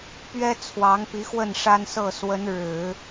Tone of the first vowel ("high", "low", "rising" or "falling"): high